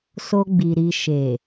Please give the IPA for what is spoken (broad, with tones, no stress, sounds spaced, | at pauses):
s o˧ ɡ͡b i˨ ɾ i˧ ʃ e˨